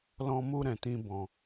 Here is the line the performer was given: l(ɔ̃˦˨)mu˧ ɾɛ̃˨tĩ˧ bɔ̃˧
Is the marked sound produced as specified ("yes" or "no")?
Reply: no